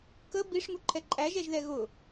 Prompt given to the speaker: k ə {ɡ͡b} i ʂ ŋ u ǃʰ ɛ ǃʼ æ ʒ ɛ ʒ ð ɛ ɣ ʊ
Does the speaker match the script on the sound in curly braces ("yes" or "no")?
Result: no